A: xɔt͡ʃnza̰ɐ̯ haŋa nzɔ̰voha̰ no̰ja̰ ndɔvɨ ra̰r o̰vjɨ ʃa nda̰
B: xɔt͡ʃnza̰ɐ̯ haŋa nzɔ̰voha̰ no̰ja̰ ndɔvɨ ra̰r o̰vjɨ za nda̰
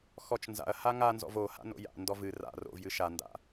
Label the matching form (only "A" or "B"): A